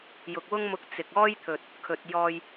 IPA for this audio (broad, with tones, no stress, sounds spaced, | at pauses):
j ʊ˨ k̚ w ʊ˥ ŋ m ʊ˧ k̚ t͡s ɪ˨ k̚ ɔː˥ j t̪ʰ ɵ˨ t̚ | kʰ ɵ˨ t̚ j ɔː˧ j